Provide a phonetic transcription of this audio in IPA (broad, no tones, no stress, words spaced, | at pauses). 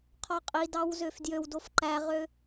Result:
qʰɔqʼidɑw zøfdjøwdof ǃæʁø